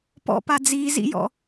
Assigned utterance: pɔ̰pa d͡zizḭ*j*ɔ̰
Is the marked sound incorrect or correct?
correct